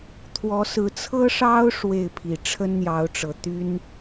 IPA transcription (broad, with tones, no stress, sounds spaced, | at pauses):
t̪ʰ w ɔ˨˦ s ɹ̩˨˦ t͡sʰ ɤ˦ ʂ ɑ˦ ʊ̯ ʂ w e˥˨ ɪ̯ pʰ i˨˩ ʈ͡ʂʰ ə˦ n n̪ j ɑ˨˦ ʊ̯ ʈ͡ʂ ɤ˨˩ t̪ y˦ n